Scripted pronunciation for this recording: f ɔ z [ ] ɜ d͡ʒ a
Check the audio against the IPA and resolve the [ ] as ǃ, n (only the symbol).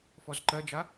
ǃ